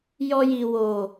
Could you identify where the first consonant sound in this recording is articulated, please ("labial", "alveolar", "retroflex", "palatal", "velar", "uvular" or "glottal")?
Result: palatal